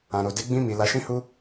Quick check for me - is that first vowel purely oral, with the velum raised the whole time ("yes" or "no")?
no